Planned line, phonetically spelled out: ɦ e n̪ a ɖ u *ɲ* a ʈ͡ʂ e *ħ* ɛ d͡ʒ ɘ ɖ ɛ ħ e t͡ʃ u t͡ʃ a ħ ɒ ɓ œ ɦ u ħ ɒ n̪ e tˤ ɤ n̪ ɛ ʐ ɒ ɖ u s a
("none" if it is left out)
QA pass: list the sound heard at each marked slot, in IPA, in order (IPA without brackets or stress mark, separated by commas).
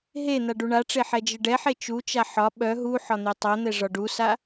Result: ɳ, ħ